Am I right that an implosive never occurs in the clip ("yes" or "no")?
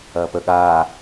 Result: no